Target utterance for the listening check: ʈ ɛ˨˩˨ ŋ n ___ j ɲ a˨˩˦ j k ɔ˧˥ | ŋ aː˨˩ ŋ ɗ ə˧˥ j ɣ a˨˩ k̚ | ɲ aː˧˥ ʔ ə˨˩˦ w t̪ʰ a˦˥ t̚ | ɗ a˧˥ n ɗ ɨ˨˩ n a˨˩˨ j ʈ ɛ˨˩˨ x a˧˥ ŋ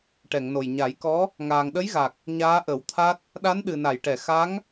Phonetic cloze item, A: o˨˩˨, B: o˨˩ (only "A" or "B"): B